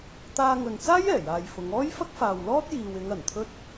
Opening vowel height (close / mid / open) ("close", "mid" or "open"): open